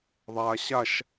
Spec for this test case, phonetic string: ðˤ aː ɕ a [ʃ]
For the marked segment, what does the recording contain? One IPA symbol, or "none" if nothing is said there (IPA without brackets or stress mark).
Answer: ʃ